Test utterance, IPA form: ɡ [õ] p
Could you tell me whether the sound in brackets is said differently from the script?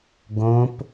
no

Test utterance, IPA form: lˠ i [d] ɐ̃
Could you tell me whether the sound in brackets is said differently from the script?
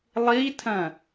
yes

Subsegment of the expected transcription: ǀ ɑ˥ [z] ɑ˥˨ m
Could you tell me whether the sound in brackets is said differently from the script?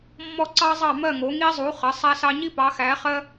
yes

